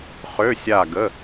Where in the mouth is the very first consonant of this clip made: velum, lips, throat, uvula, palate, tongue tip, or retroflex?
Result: uvula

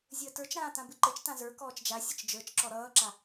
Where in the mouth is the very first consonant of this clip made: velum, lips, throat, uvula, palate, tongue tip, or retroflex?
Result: tongue tip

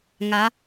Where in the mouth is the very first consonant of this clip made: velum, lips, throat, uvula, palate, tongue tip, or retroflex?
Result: velum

